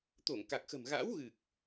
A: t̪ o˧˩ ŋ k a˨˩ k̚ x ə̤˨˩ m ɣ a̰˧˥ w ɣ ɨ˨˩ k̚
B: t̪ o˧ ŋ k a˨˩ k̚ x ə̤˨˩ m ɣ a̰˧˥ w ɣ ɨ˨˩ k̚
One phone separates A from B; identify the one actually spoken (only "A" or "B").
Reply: A